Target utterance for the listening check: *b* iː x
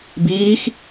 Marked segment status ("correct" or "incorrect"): correct